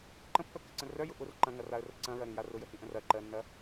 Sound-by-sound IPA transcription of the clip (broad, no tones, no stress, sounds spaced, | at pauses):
ǃ ə̃ pː œ kː ə ǀ ə̃ r œ j ʊ ʔ ʊ r ǃ ɐ̃ ŋ ɐ r a ə̯ r ə ǀ ɐ̃ ɹ ɐ ɾ ĩ j a r ʊ j ə h ĩ ʔ ə̃ r ɐ ǃ ɜ nː ɐ